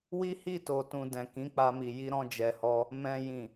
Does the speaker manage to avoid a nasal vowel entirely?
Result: no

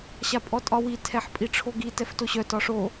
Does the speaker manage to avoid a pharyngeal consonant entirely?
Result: no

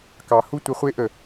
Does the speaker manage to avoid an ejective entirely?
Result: yes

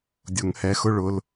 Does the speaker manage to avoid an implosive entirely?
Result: yes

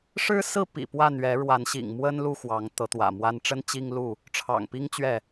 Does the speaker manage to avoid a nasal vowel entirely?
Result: yes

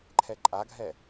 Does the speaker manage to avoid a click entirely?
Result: no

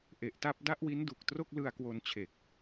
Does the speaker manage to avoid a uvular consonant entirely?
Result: yes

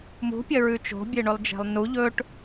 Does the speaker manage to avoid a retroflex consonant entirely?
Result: no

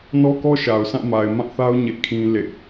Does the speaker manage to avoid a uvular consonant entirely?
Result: yes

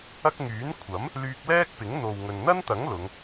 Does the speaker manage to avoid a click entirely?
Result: yes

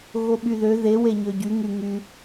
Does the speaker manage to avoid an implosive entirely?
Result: no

